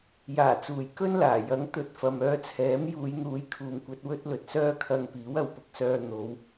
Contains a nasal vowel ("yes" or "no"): no